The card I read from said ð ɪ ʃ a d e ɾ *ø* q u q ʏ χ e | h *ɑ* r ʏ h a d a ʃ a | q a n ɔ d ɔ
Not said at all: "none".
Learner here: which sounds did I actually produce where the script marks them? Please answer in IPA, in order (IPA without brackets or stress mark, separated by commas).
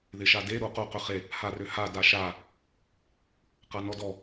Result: u, a